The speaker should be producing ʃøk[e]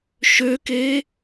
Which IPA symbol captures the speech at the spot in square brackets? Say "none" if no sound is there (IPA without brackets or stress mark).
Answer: e